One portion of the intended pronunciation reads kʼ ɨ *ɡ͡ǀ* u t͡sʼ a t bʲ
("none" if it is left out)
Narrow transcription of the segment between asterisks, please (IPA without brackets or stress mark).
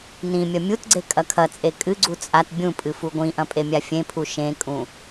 ɡ͡ǀ